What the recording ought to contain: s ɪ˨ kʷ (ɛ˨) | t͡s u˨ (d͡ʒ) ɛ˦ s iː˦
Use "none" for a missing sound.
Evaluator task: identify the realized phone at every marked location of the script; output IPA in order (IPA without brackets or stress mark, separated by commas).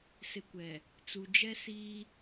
ɛ˨, d͡ʒ